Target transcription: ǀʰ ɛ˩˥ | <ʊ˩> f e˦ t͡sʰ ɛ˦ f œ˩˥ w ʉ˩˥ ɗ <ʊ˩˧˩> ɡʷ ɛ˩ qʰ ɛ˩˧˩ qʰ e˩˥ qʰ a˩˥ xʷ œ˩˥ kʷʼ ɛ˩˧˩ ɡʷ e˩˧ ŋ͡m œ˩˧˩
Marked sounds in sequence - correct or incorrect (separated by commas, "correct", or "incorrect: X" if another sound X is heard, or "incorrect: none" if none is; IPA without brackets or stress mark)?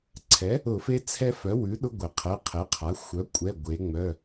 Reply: incorrect: ʊ˧˩˧, incorrect: ʊ˦